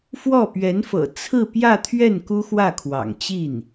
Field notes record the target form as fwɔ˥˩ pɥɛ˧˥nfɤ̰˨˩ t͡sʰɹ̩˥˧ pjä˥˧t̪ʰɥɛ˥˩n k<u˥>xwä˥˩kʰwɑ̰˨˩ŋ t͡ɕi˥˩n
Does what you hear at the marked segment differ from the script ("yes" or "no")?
no